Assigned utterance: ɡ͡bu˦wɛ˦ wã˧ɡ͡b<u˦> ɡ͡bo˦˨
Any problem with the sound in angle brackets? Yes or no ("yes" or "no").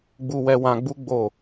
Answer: no